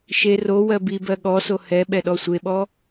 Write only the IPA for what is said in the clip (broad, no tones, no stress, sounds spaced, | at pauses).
ʃ e r o w ɜ b i b ɜ ɠ ɔ s o h ɛ ɓ ɛ ɗ ɔ sʷ e ɓ ɔ